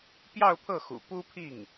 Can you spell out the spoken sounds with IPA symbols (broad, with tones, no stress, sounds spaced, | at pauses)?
p j ɑ˥˧ ʊ̯ pʰ ɤ˥˩ x ṵ˨˩ p u˥ pʰ i˥˩ ŋ